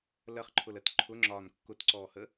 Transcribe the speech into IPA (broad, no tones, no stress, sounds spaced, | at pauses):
l ɜ χ ǃʰ ʊ l ɜ t ǃʰ ʊ ŋ͡ǁ ɒː n kː ʊ t ǀ ɔː h ə